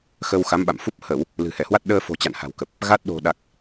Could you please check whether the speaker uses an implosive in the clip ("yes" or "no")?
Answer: yes